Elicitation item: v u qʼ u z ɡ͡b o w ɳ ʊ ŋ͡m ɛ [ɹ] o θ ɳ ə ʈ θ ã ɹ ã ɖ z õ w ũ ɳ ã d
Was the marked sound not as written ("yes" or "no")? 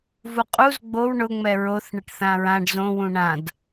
no